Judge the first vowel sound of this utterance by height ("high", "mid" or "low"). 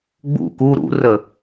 high